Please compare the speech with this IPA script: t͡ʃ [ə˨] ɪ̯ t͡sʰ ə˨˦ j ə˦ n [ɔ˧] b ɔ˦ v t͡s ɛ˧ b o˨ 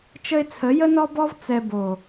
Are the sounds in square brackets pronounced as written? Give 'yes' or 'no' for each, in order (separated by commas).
no, no